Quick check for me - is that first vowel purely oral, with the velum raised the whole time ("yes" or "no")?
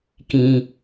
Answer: no